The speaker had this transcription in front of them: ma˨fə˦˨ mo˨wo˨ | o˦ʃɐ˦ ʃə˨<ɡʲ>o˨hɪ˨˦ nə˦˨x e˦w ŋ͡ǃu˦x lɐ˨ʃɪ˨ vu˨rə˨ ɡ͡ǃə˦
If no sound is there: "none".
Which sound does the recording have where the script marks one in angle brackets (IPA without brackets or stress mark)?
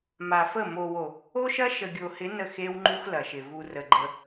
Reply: ɡʲ